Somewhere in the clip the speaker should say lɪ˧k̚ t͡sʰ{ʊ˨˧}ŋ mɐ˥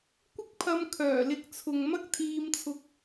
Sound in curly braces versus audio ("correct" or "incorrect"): incorrect